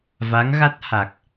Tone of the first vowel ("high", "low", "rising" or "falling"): rising